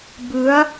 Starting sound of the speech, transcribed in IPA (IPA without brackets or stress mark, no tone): b